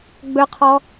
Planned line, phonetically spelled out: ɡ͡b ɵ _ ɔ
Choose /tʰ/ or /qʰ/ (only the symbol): qʰ